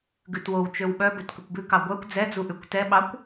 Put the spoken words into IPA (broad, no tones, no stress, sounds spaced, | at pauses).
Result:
ɡ ʉ t w o w t͡ʃ ø w ɓ œ b ɵ t k ɵ kʷ b ʉ k ɑ ɡʷ œ kʷ d͡z ɛ d͡z u ʔ ʉ kʷ t ɛ ɓ ɑ kʷ